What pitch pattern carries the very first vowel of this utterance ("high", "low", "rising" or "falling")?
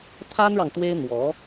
high